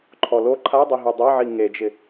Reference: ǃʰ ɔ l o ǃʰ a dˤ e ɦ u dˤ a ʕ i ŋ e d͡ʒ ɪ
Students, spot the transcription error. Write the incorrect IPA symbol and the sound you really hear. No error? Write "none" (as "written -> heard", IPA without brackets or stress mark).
none